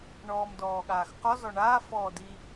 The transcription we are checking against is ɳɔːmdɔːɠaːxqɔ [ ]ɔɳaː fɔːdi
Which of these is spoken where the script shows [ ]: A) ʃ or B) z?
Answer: B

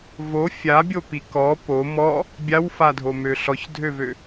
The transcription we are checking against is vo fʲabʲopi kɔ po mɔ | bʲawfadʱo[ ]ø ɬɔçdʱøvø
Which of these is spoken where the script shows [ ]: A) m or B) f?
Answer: A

